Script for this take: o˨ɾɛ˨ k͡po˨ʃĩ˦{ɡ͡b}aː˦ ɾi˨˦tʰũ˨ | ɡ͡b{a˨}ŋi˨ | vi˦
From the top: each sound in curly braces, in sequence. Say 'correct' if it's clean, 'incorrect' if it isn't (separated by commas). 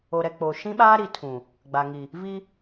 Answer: incorrect, correct